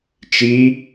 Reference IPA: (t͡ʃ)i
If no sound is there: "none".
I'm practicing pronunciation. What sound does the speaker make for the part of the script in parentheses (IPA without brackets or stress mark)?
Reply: t͡ʃ